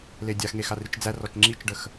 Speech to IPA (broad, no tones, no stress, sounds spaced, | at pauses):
l e dʲ a x ŋ e x a r i t͡ʃ d͡z æ r ɔ t͡ʃ ŋ͡ǁ i t͡ʃ ɖ ə x